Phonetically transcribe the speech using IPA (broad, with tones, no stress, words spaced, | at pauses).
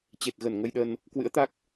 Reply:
t͡ɕe˨˩t̚ɣə˧˩n ŋə˧jɗə˧n | kwɨ̰˧˥ə̯t̪a˦˥k̚